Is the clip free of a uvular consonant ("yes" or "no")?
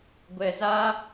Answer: yes